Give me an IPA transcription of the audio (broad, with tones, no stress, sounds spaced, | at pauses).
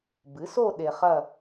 b ɨ˩˥ s o˥˧ ɗ e˧ χ ɐ˥˧